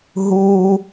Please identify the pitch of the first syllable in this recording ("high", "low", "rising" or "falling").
high